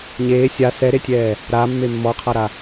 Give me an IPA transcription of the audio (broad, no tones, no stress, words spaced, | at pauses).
ɲeː sʲa sɛɾetʲɛː | ɾamːe mːɔqʰaɾa